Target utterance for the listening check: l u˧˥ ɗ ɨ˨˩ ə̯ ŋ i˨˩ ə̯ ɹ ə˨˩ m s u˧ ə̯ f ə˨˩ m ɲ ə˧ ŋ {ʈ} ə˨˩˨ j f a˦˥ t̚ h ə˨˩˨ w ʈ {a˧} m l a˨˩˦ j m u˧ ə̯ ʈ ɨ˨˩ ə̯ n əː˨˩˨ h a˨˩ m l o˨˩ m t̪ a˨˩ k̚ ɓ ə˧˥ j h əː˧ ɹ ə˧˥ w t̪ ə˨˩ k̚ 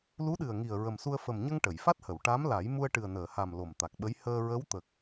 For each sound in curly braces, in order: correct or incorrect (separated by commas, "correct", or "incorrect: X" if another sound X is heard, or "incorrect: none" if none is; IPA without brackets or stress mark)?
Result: correct, incorrect: a˧˥